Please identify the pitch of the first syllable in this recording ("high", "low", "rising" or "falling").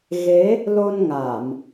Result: rising